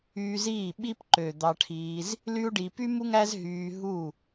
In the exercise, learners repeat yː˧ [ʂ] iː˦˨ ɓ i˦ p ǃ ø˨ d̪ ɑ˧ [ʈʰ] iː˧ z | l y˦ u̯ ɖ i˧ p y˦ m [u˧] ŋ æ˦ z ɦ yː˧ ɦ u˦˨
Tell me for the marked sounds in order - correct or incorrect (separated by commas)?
incorrect, correct, incorrect